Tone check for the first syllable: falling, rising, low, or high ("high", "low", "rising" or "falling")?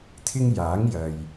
high